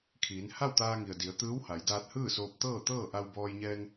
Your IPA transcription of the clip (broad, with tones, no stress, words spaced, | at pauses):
kʰiː˩˧n ha˥˨wt̪aː˧ŋi˩ə̯ di˩˧ə̯ t̪ɯː˧˥wha˩˧jdaː˧t̚ hɯː˥˨soː˧p̚t̪ɤː˥˨t̪ɤː˥˨ ʔa˧wbɔː˧jɲɛː˧ŋ